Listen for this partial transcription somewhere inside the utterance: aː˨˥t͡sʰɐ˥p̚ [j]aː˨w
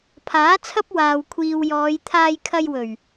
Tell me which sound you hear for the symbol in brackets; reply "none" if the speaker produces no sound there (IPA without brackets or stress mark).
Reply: w